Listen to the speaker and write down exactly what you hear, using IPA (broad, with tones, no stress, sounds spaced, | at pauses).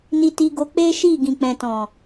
n i˧ t i˧ ɡ o˧ k͡p e˦ ʃ i˦˨ ɡ ĩ˨ k͡p ɛ̃˨ t ɔ̃˨